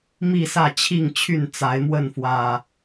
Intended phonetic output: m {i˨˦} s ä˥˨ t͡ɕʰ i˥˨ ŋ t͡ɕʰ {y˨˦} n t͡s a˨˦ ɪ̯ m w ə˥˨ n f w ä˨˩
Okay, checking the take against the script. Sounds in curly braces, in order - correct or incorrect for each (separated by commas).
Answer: incorrect, incorrect